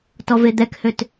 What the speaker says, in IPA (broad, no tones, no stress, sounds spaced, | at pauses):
t ɔ v e d̪ ɛ k h ø t